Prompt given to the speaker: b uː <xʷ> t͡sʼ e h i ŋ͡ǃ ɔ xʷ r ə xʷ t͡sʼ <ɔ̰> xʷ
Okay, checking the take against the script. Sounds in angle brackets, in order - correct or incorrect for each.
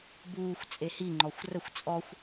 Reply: correct, incorrect: ɔ

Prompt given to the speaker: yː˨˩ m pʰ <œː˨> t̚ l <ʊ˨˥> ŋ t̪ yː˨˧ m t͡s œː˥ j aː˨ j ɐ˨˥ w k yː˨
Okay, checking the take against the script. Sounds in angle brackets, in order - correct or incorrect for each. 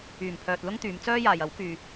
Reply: correct, incorrect: ʊ˥

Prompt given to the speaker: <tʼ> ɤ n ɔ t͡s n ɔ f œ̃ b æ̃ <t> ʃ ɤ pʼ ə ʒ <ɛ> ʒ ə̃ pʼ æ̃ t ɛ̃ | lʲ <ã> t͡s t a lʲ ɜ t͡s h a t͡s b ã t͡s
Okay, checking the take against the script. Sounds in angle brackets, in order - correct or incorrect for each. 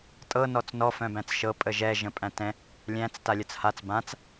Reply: correct, incorrect: t͡s, correct, incorrect: æ̃

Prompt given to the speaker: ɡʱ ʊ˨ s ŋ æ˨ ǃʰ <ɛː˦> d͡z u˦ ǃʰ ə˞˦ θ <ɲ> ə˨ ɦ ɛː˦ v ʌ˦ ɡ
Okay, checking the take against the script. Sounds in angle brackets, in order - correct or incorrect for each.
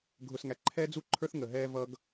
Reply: correct, incorrect: ŋ

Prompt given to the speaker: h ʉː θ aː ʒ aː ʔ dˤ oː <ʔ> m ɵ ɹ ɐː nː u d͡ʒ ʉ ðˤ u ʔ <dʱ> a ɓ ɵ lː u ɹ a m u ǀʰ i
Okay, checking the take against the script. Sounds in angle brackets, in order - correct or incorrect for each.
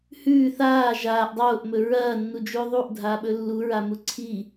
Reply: correct, correct

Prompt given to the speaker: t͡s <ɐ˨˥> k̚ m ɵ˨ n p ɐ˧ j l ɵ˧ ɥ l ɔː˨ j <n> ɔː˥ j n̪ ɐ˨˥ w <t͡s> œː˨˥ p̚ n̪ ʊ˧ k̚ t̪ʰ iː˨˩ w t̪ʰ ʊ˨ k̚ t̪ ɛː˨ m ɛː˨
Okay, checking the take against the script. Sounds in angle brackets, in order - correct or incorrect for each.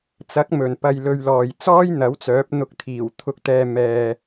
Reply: correct, incorrect: t͡s, correct

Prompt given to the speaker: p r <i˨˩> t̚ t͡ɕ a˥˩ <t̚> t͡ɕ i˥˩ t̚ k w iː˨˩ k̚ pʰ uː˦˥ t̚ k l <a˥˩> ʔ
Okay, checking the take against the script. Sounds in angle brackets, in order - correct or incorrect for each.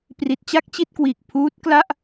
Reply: correct, incorrect: k̚, correct

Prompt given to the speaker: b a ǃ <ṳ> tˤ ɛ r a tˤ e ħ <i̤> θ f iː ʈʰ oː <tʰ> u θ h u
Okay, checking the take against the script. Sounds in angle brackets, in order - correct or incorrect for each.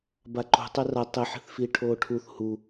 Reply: correct, correct, incorrect: ʈʰ

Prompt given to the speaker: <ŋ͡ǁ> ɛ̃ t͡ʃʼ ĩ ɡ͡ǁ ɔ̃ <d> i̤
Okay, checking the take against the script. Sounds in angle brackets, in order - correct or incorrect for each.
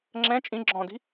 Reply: correct, correct

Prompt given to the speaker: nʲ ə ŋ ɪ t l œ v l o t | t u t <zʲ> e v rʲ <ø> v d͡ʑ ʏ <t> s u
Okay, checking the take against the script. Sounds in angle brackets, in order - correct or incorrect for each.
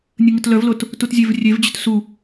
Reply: correct, incorrect: e, correct

